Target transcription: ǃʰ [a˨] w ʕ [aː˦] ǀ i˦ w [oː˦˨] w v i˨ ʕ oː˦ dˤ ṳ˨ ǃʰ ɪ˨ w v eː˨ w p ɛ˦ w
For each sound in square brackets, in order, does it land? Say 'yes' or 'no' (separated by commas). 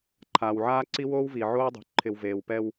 no, yes, no